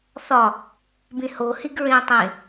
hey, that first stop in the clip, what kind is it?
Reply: plain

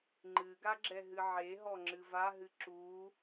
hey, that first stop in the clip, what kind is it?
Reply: click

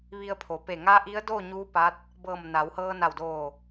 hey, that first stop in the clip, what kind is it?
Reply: aspirated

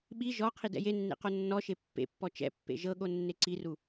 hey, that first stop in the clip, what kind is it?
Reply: implosive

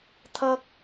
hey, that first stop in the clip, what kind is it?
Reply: aspirated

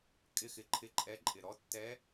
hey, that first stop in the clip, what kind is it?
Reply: ejective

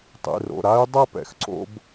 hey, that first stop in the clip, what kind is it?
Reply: plain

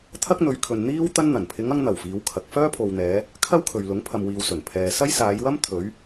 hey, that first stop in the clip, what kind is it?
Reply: aspirated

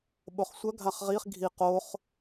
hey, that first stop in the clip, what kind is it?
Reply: implosive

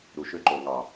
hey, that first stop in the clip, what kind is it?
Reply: click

